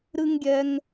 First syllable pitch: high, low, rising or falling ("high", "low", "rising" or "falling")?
high